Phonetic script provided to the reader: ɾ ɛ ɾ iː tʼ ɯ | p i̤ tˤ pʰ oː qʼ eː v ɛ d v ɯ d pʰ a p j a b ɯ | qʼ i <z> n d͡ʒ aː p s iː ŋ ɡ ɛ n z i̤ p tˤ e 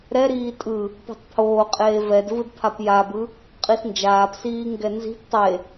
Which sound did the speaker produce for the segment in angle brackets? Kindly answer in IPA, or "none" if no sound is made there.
s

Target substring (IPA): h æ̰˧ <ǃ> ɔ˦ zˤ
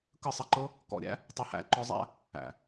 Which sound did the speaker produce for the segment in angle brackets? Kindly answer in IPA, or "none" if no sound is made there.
ǃ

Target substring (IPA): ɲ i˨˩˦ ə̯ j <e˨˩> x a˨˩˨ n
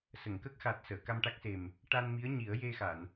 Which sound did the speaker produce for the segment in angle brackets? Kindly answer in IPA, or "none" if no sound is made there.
e˧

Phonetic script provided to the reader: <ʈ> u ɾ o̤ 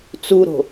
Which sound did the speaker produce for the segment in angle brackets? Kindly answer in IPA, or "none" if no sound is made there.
t͡s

